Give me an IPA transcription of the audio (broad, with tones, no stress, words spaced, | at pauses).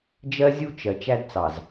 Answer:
d͡ʒɜ˦zʲu˦t͡ʃɜ˨ t͡ʃæ˦dt͡sɑ˨z